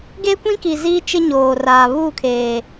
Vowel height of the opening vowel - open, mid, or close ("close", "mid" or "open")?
mid